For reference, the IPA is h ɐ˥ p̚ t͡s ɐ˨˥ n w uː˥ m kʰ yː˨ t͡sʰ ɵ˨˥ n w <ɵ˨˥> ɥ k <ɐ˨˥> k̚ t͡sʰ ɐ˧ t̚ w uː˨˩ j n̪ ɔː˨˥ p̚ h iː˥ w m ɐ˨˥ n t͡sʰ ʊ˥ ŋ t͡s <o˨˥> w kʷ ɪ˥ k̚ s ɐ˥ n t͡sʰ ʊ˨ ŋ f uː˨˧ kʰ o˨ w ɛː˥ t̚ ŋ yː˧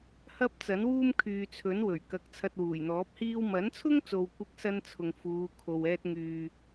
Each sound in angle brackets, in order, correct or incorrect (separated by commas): incorrect, incorrect, incorrect